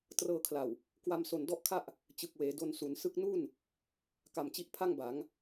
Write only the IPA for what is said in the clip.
t r ɤː˧ kʰ l a˨˩ w | k w a˧ m s o˨˩ n d ɔ˥˩ ʔ kʰ a˥˩ ʔ | t͡ɕ ɯ˨˩ k̚ w eː˩˦ d o˧ n s u˩˦ n s ɯ˦˥ k̚ n u˥˩ n | k a˨˩ m t͡ɕ i˦˥ ʔ pʰ a˥˩ ŋ b a˩˦ ŋ

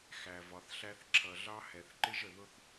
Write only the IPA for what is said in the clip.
x æ˨ v ɒ˨ θ ɬ æ˦ θ ǁʰ ʌ˨ ɮ ɑ˦ h ɛ˨ θ ǃ ɪ˦ ʒ ə˨ ð ʊ˦ θ

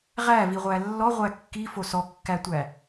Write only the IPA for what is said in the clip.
ʁ æ v i ʁʷ æ lː ɔ ʁʷ æ kː i f o s ɔ kː æ tʷ æ

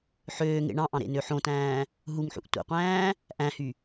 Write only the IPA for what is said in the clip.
ħ øː ŋ ḛ ɳ ɑ̃ ʔ ɑ̃ ɾ ḛ n ø ħ õ t æ̃ː | ɦ u ŋ ħ ṵ ʔ tʷ ḛ qʷ æ̃ː | ʔ æ̃ h y

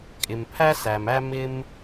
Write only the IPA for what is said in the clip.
kʼ ɪ˩ m pʰ æ˧ s æ˩ m æ˧ m ɪ˧ m

